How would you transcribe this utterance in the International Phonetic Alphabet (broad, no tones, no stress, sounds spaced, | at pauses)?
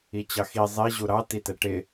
i t͡ɕ ɑ x i zˤ i ʑ u ɾ ɑ t i t ɛ ʈ ɪ